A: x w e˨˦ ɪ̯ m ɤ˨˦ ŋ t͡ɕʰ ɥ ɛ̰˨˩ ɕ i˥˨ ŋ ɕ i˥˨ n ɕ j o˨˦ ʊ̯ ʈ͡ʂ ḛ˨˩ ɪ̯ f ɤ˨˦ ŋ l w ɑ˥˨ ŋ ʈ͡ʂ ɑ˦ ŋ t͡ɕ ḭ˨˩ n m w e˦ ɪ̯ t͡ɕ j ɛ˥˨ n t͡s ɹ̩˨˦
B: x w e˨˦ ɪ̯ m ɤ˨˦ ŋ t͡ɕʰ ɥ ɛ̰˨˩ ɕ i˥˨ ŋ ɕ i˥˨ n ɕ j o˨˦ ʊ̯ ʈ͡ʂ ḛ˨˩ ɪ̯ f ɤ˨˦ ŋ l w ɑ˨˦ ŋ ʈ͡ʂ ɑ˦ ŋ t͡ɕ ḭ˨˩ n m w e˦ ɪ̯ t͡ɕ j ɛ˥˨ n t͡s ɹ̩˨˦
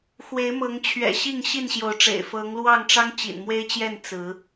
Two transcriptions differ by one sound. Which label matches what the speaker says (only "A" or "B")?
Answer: A